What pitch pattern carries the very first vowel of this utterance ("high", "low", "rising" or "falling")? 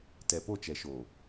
low